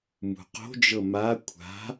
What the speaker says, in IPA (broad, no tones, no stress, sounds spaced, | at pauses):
m ṳ q o̤ d͡ʒ ɤ m a kʷʰ a̤